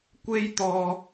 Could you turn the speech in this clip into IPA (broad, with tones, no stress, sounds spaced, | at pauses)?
kʷ e˥ j t̪ ɔː˧